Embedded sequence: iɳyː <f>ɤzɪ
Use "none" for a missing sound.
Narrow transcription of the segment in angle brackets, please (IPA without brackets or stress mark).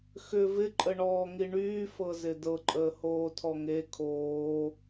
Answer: f